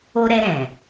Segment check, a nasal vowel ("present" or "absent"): present